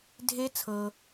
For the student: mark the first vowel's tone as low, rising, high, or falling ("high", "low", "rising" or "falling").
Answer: rising